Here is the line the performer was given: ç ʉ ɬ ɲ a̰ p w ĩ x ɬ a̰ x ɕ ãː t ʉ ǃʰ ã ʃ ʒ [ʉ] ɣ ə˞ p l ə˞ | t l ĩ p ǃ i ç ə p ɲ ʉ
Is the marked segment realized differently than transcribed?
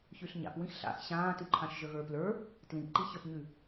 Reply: yes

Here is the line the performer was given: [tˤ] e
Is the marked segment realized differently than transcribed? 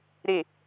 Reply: yes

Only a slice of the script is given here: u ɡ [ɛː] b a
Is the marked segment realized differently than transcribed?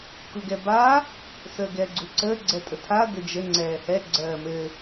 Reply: yes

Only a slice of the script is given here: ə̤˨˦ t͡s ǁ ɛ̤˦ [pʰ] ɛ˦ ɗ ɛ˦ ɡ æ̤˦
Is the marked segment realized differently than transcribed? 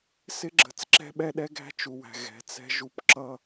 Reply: yes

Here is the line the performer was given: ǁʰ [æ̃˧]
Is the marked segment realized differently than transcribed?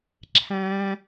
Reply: no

